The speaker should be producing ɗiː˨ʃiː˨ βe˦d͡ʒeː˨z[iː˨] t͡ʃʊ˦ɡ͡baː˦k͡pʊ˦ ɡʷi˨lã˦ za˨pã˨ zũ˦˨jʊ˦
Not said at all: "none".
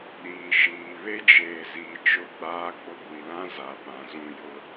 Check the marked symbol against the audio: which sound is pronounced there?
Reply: iː˨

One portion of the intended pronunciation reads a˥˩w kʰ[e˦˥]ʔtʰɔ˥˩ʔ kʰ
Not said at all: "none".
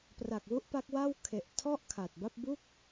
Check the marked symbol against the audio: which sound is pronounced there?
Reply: e˨˩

